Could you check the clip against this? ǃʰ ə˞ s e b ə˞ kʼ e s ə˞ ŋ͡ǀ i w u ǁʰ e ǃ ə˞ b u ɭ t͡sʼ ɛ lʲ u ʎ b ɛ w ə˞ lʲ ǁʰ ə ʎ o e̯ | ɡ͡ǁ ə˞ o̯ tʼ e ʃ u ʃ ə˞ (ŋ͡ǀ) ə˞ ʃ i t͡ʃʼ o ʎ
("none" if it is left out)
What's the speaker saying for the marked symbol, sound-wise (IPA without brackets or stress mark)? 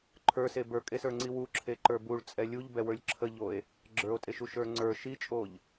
ŋ͡ǀ